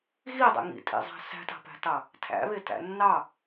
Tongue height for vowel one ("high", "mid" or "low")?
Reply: high